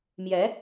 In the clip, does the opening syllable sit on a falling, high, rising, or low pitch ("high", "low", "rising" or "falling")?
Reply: rising